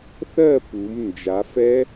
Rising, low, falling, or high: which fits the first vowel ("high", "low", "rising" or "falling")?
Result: falling